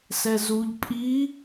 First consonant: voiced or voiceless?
voiceless